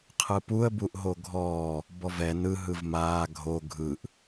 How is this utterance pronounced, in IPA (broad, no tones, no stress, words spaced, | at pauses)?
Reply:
qʰɯpuə̯ buʔɦoɡʱɔː | bɔvɛ nɯ ɦɯvmaː ɡʱo ɡʱɯʔ